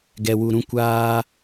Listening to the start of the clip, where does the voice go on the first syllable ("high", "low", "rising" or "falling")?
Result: low